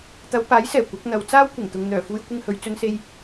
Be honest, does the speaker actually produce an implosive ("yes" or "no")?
no